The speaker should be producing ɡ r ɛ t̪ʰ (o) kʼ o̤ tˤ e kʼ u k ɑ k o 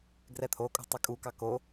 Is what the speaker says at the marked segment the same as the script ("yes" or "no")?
yes